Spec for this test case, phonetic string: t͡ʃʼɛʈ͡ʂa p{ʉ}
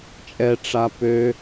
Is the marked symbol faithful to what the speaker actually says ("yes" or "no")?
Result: no